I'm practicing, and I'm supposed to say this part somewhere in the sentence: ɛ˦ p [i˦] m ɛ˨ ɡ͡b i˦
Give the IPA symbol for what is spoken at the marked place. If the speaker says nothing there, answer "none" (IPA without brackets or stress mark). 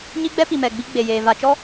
i˨